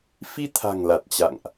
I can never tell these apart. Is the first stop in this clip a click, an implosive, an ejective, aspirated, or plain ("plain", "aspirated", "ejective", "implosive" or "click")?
aspirated